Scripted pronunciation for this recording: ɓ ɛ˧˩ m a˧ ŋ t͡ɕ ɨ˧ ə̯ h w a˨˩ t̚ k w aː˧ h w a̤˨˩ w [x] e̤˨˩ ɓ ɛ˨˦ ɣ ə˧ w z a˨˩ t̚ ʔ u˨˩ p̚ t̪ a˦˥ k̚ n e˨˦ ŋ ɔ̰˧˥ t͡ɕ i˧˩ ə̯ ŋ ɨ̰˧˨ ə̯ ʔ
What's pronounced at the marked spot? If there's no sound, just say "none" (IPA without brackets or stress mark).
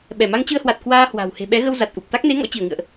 h